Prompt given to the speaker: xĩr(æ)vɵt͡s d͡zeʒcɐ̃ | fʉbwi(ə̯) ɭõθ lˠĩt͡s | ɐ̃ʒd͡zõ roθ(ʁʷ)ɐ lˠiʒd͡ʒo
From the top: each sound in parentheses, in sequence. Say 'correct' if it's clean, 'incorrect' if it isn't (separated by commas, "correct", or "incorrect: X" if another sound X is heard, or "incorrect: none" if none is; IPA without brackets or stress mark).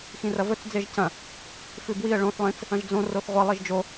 incorrect: ɐ, correct, correct